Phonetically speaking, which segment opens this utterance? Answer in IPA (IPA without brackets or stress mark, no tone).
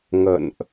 ŋ